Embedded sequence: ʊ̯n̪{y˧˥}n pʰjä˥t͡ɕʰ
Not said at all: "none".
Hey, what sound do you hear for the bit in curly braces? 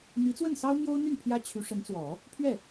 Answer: y˥˩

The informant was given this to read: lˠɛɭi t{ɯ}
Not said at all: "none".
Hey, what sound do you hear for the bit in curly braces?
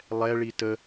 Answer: ə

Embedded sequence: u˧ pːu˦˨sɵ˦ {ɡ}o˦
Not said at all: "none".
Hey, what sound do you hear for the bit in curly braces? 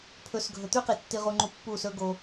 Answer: ɡ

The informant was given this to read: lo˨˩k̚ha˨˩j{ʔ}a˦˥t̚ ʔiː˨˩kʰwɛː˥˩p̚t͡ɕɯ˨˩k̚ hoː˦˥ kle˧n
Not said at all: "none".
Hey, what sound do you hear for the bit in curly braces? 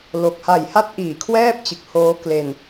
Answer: h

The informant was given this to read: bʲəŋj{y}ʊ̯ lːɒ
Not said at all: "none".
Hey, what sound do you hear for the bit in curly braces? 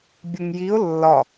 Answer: i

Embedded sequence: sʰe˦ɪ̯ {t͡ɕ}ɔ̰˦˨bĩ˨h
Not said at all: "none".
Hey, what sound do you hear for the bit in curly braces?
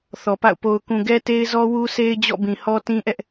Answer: d͡ʑ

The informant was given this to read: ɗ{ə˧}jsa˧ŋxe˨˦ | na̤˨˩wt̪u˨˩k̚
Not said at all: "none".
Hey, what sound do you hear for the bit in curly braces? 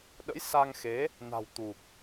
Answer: ə̰˧˥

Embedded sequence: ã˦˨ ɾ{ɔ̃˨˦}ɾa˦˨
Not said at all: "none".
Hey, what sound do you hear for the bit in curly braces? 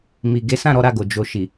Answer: ɔ˨˦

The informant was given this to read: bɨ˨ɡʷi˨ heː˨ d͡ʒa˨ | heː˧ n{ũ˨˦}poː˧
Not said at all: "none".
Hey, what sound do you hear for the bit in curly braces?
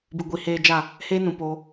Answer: ũ˨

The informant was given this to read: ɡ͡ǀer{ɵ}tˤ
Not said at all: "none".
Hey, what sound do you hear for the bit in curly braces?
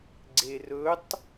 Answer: ɵ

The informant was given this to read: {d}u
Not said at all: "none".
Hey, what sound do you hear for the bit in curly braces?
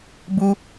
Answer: b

